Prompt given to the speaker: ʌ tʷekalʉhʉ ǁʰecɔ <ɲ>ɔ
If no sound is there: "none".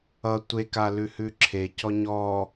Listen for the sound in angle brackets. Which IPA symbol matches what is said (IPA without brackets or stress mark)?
ɲ